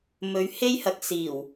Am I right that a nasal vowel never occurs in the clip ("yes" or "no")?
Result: yes